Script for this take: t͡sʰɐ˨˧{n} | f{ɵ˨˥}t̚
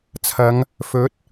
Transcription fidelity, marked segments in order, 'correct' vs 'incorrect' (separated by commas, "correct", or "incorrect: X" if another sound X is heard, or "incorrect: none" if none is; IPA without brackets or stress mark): incorrect: ŋ, correct